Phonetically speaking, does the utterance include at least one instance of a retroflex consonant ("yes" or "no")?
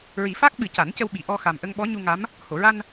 no